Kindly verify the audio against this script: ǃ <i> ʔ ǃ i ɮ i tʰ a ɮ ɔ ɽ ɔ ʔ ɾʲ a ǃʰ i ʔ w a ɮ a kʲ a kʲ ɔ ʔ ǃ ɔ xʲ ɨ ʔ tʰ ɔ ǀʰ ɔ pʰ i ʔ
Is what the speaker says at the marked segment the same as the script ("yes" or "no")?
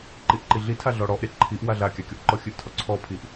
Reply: yes